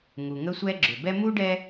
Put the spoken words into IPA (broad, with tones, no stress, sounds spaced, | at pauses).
ŋ u˩ ŋ ə˦ sʷ ɛ˦ ɡ͡ǁ ʏ˩ b ɛ˦ m u˥ ɖ ɛ˦